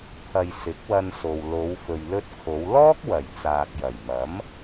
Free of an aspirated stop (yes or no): no